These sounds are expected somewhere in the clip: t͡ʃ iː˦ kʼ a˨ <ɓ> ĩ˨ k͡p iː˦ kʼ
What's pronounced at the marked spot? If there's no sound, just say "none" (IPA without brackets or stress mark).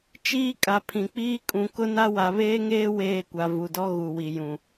pʰ